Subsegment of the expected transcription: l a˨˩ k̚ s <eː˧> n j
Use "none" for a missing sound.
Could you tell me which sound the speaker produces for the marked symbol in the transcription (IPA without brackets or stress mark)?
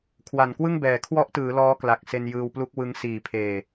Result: e˧